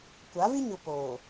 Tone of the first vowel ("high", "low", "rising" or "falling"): rising